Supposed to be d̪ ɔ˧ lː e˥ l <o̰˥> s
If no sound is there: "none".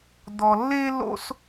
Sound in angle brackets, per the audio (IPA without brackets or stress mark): o̰˥